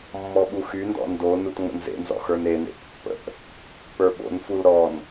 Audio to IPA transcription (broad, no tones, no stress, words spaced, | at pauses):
mːɔɓuxyndɔ̰ ndo nutŋ͡mə̰nzḛnzɔ̰ xə˞nenḛʔ pːə̰ʔ | pə˞ɓo̰nful ɾɔn